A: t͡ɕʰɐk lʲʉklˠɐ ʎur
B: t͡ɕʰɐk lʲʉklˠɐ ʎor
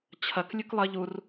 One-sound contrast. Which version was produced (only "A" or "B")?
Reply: A